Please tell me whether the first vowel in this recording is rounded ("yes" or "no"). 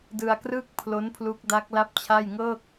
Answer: no